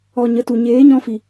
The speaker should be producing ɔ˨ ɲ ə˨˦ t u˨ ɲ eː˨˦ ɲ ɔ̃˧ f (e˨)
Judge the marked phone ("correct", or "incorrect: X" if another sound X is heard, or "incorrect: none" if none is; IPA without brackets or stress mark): incorrect: i˨